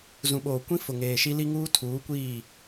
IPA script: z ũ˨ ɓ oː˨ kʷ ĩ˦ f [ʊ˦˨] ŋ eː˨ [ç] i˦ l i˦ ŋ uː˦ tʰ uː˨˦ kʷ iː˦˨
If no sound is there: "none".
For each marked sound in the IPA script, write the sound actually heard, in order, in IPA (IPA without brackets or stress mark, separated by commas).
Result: ʊ˨, ʃ